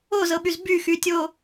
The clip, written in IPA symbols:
o z ɤ ɓ y z b y x y tʲ o

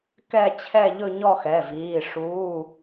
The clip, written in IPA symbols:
k ɛ˥˧ t͡ɕʰ ɛ˥˧ ʎ ɵ˥˧ ɲ ɔ˥˧ x ɛ˩˧˩ v iː˩˧˩ ʂ uː˩˧˩

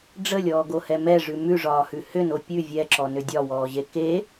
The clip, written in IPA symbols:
ɖ͡ʐ ə lʲ ɔː ɡ o h ɛ m ɛ ʐ ʉ m ʉ ʐ ɒː h ʉ h ʏ n o pʲ ʉ vʲ ɛ ǁ ɔ n ʏ dʲ ɒ w ɔː ʑ e k e

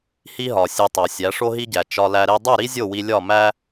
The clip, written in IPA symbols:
h i˦ ɦ ɒ˨ sʲ e˧ tˤ o˨ sʲ æ˨˦ ʂ o˦ ɦ i˦ ɟ æ˨ t͡ʃ ɒ˧ l æ˧ ɾ e˦ dˤ u˦˨ ɾ i˦ zʲ o˦˨ w i˧ lʲ ɒ˦˨ m æ˦

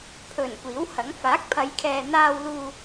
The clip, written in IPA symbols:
pʰ ɵ˨˩ n kʷ iː˨˥ w h ɐ˨˥ ŋ f aː˨˥ k̚ pʰ ɐ˨˧ j kʰ ɛː˨ n̪ aː˧ w l uː˧

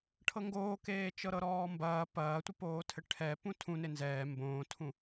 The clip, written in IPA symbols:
ʈʰ ɤ ŋ ɡ oː k eː t͡ʃ ɤ ɾ ɤ ɾ ɔː m b ɐː p ɐː tʷ ɘ p oː tʰ ɘ ʈʰ ɛ p ũ tʰ ũ n e n z ɛː m b õː tʰ ũ

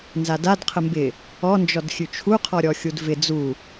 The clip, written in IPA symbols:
n z a d a d qʰ ə m b ɪ | ɔ n d͡ʒ ɔ d xʲ ʉ t͡ʃʰ u qʰ ɔ ɾʲ ɔ xʲ u d v ɪ d͡z u

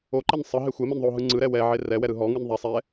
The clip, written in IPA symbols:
o ǃ e n sˤ ɯ ɦ e xʷ ɛ m ɛ n ðˤ o ɦ ɯ ŋ͡ǀ ɯ ɾ ɛ w ɛ ʕ e r ɛ w ɛ ɾ ɯ ɦ ɔ ŋ ɯ n ðˤ ɛ sˤ ɛ

